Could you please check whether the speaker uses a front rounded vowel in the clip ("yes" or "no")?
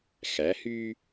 yes